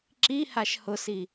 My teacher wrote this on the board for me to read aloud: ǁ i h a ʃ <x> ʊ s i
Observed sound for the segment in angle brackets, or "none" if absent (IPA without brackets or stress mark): h